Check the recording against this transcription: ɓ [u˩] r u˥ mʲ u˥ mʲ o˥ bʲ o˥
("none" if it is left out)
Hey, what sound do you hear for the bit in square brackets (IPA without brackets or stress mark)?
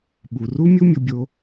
u˩